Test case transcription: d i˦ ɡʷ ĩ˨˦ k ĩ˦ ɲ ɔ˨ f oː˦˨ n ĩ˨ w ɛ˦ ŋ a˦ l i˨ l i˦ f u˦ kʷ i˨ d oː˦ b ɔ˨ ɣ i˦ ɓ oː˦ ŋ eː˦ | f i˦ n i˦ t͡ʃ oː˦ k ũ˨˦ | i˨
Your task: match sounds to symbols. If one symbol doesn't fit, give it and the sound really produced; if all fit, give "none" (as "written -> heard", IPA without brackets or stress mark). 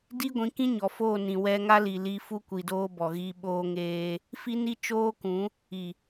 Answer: none